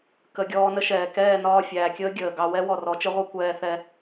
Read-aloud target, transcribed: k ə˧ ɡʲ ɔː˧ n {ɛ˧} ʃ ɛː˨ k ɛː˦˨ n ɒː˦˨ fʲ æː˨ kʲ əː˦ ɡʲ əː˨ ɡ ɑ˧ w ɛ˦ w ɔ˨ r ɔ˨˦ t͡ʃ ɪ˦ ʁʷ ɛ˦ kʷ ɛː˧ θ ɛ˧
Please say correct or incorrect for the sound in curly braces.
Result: incorrect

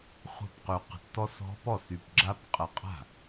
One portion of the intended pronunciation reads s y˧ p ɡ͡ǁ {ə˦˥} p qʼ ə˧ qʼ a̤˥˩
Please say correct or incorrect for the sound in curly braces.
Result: incorrect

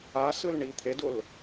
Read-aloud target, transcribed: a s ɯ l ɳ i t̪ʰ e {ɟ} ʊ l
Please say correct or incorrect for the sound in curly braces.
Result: incorrect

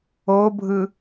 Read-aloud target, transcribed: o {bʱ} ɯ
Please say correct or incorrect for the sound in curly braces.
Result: correct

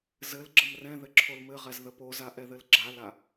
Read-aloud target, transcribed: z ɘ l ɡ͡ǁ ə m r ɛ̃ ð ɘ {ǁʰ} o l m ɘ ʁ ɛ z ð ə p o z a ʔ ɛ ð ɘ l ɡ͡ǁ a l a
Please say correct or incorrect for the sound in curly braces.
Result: correct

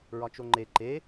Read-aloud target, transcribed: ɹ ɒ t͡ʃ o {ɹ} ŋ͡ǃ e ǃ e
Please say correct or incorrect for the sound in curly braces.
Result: incorrect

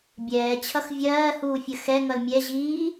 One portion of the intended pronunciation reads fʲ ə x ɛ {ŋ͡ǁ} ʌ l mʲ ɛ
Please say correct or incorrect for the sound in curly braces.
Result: incorrect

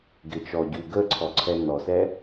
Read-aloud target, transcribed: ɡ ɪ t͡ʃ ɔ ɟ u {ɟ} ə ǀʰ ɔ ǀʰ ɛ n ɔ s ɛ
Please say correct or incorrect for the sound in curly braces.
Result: incorrect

